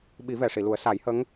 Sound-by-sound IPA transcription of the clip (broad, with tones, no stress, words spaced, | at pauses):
ɓi˨˩˦vɛ˨˩˨ʂi˨˩˨ lu˨˩˦ə̯sa˨˩˦jhə˧˥ŋ